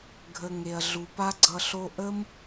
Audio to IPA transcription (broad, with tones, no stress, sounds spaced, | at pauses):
ɡʱ ə˨ ŋ e˨ ɐ̯ ɮ u˨ p a˦ ɡ͡ǀ ʌ˧ ɬ o˦ ʔ ə˦ m